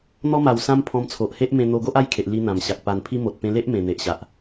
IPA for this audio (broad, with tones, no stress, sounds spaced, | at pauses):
n̪ ɔ˧ m a˨˩ w s ã˧ m pʰ ɔ̃˧ m t͡sʰ o˨ ʔ h e˦ ʔ m ẽ˧ n̪ o˧ ɡ o˦ ʔ a˥˧ j kʰ e˨ ʔ l i˧ n̪ ã˨˩ m ɕ a˨ k̚ p a˨˩ n pʰ i˧ m o˨ t̚ p ẽ˧ l e˦ ʔ m ẽ˨˩ n̪ e˨ ʔ ɕ a˨ ʔ